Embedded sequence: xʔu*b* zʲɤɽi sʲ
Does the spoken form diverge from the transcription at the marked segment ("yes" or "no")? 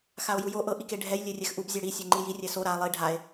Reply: no